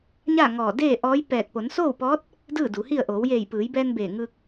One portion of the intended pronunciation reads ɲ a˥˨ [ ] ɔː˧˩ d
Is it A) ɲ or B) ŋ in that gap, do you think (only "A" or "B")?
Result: B